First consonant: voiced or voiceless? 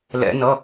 voiced